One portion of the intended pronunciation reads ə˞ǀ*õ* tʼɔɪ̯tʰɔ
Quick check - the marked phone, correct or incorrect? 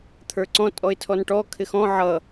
incorrect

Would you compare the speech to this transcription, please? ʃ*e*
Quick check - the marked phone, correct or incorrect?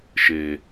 correct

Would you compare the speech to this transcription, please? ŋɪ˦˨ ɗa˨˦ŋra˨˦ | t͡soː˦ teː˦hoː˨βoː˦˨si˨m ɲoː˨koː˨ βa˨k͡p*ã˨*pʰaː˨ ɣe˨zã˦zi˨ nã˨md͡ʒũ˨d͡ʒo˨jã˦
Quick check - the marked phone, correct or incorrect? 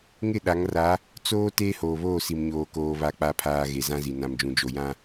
incorrect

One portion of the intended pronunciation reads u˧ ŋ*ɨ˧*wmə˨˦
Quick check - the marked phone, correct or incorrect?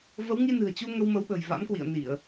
incorrect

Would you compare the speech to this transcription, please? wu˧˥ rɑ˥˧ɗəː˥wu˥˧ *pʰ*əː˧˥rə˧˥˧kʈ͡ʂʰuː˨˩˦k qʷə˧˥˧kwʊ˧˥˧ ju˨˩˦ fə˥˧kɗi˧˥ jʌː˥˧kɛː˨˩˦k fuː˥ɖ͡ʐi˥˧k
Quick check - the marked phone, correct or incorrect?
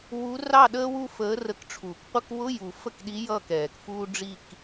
incorrect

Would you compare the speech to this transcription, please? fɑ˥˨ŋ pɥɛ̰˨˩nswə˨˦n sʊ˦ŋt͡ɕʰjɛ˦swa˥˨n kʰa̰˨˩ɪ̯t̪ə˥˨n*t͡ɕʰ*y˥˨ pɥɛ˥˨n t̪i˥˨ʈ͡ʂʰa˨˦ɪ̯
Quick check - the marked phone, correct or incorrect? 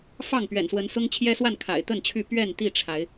correct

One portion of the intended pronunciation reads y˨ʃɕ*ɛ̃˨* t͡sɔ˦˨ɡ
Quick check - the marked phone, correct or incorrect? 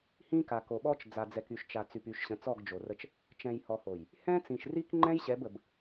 incorrect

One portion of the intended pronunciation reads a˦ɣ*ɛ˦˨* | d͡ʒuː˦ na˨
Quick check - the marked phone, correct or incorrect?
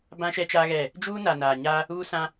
correct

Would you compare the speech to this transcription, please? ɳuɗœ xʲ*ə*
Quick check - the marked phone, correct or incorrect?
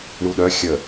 correct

